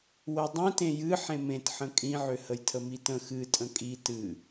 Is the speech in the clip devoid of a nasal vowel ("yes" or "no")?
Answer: no